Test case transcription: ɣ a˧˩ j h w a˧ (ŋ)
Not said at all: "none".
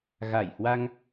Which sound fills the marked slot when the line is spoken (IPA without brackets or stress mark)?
ŋ